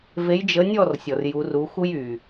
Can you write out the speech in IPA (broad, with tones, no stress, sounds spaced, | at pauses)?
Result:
v e˨˦ j d͡ʒ ə˨˦ nʲ ɔ˥˨ r sʲ ɔ˩ r j u˨˦ r u˨˦ x u˥ j y˩